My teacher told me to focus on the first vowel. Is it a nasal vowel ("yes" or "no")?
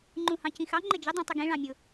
yes